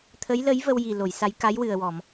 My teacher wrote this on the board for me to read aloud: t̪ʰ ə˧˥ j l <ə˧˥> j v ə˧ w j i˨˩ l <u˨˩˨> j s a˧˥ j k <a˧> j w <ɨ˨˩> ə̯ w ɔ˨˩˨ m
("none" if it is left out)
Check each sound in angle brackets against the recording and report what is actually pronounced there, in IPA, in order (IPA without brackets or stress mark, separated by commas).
ə˧˥, o˨˩˨, a˧˥, ɨ˨˩